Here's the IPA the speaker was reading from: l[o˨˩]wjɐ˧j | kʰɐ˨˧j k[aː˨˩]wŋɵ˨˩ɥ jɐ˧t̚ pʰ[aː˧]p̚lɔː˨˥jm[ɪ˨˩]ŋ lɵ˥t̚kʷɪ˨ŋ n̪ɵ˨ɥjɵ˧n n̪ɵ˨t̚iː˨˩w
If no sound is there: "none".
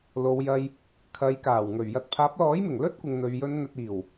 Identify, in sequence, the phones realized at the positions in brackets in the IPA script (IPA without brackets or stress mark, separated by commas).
o˨˧, aː˨˩, aː˨˥, ɪ˨˩